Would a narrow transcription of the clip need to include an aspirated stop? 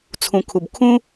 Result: yes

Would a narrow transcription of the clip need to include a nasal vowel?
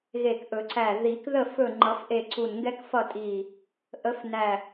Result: no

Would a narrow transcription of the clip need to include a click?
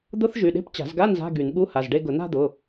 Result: no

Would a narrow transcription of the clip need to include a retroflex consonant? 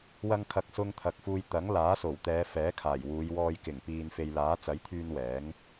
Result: no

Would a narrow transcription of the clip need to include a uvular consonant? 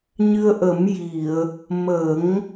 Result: no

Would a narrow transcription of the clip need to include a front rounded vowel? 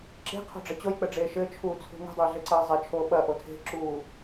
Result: no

